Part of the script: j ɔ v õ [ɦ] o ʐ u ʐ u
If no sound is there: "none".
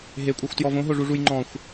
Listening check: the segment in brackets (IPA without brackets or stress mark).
ɦ